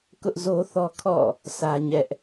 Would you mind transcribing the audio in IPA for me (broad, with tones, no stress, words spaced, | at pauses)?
kʊ˦ʔzo˦θɔ˦ kʰɔ̰˦˨ | sʰä˦ ɲɛ˦ʔ